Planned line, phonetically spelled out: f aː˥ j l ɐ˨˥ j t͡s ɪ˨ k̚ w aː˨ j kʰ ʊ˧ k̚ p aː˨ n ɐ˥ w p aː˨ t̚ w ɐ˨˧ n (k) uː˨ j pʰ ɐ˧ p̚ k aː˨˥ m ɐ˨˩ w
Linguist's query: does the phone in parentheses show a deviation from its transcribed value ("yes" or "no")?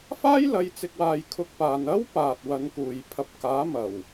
no